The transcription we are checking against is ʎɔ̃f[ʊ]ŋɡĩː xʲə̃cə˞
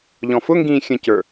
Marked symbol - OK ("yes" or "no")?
yes